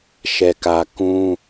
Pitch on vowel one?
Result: low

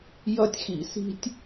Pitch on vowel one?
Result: high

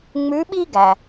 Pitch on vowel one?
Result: rising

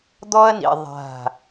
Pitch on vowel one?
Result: high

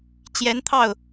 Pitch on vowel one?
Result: rising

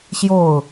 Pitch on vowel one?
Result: falling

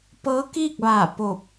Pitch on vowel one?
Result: rising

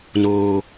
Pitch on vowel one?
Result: low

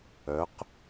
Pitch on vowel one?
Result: rising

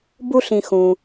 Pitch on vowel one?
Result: high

